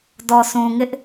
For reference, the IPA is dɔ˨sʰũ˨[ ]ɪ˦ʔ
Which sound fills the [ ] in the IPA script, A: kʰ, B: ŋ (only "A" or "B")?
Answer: B